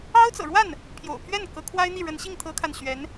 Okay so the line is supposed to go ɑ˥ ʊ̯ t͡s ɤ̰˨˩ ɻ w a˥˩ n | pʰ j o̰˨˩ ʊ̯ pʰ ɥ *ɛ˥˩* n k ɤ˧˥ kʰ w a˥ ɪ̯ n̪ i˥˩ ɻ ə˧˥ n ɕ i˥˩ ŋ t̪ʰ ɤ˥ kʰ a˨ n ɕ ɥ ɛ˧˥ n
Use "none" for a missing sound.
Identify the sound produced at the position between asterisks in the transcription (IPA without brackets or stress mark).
ɛ˥˩